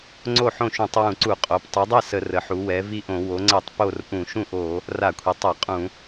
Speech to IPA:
ŋ͡ǀ o˥˩ ħ õ˥˩ ʃ ũ˧˩˧ tˤ w ũ˧˩˧ ǀ u˧˩˧ qʼ o˩˧ p tˤ u˩˧ dˤ ɛ˥˩ s ə˧˩˧ r ə˩˧ ħ u˩˧ w ɛ˩˧ v i˥˩ ʔ õ˧˩˧ w o˩˧ ŋ͡ǀ ɛ˧˩˧ tˤ p o˥˩ r ʔ ũ˧˩˧ ʃ ũ˥˩ ʔ o˧˩˧ | r a˧˩˧ kʷʰ i˩˧ tˤ a˧˩˧ qʼ ũ˧˩˧

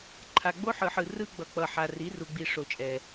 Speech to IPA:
ǃʰ a˨ ɡ͡b o˦ ħ ɯ˨ ħ ɯ˨ r ɯ˦ ɡ͡b ʌ˨ k͡p ʌ˨ ħ a˨ r i˨˦ r u˨ ɡ͡b i˨ ʂ o˨ t͡ʃʼ ɛ˨

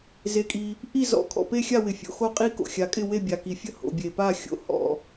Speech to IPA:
z e˩ kʼ i˩ | ʔ i˥˩ z ɔ̰˩ kʰ ɔ̰˩ p e˥˩ xʲ a˥˩ w ɪ˩ fʲ o̰˩ x o˥˩ qʼ i˥˩ k o̰˩ xʲ a˩ kʼ ɪ˥˩ w e˥˩ bʲ a˩ k i˩ fʲ ə˥˩ h o̰˩ bʲ e˩ p a˥˩ xʲ o̰˩ h ɔ̰˩

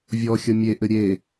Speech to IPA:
vʲ ɔ xʲ ʌ mʲ e ʔ ɘ ɾʲ e

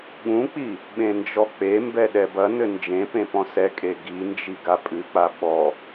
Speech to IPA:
ɠ ũ k͡p i | ɓ ẽ n d͡ʒ ɔ k͡p e m b ɛ ɗ ɛ b ɐ n ɘ n d͡ʒ ẽ p ẽ p ɔ̃ s ɛ kʼ e ɡ i n d͡ʒ i ɡ a pʼ ɨ k͡p a ɓ ɔ

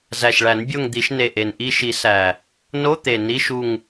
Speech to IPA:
z æ˨˩ ʃ ɭ æ˨˩˦ n bʲ o˦˨ ŋ d̪ i˨˩˦ ʃ n e˨˩ ʔ e˨˩ n ʔ i˦˨ ʃ i˨˩˦ s æ˨˩ | n o˧˥˧ t̪ e˨˩ n i˧˥˧ ʃ u˦˨ ŋ

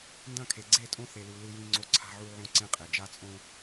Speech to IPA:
n d ɐ̃˦˨ kʰ e˨ ɡ͡ǀ e˦˨ tʼ õ˦ θ e˦ l u˦ l ɨ˦ j ĩ˦ ŋ͡ǀ o˦ ǀʰ a̤˦ ʕ u˦ ʕ õ˦ ǀ ẽ˦ qʼ e˨ d͡ʒ a˦ t͡sʼ õ˦

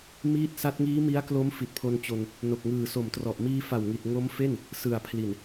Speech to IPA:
m iː˦˥ t̚ s a˦˥ t̚ ŋ iː˦˥ m i˦˥ a̯ k l o˦˥ m f i˨˩ t̚ pʰ o˧ n t͡ɕ o˧ n | n o˨˩ k̚ ŋ ɯː˨˩ s o˨˩ m t r ɔ˨˩ ʔ m iː˧ f a˨˩ w ŋ i˨˩ t̚ ŋ o˦˥ m f e˥˩ n | s ɯ˨˩ a̯ pʰ l i˨˩ n

